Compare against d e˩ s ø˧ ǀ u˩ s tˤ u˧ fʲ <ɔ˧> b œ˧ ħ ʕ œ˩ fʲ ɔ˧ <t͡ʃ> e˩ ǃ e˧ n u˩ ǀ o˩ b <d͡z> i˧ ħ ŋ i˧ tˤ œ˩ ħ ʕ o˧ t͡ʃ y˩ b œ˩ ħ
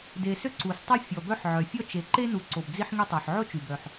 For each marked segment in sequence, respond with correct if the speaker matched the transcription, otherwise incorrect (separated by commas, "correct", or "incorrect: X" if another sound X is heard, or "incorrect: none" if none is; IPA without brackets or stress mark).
incorrect: ɔ˩, correct, correct